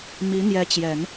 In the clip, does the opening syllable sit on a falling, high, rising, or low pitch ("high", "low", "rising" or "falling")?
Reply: rising